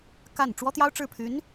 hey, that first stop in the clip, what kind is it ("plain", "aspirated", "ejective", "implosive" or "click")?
plain